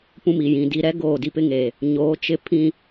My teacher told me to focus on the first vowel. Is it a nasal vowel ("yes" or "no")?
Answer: yes